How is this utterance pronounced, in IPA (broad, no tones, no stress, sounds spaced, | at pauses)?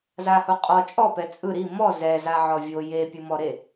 z a h o qʼ ɔ t͡ʃʼ ɔ p ɛ t͡sʼ ɯ ɾ i m ɔ z ɛ z a ʕ ɔ vʲ o j e pʲ ɯ m ɔ ɾ e